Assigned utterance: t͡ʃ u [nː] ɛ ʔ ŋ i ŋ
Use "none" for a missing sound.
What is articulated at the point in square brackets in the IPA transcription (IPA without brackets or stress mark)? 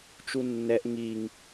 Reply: nː